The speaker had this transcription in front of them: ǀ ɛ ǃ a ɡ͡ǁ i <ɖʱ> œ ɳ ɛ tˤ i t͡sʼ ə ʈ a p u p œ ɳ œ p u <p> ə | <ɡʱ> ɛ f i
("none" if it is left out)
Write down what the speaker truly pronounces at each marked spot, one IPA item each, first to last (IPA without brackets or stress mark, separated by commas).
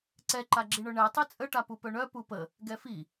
ɳ, p, ɡ